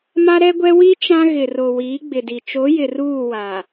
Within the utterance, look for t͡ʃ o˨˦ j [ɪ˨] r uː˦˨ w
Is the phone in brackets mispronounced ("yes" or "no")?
no